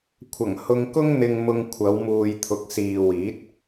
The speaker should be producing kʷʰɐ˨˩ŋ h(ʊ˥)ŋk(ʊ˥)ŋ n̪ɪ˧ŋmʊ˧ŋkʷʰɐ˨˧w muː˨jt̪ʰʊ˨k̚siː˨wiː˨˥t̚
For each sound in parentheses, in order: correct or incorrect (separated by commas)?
incorrect, correct